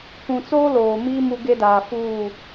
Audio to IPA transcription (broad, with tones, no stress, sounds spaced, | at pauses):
kʷ ũ˨ t͡s oː˦ l oː˨ m iː˦ m u˦ ɡ e˦ d aː˨ f uː˦˨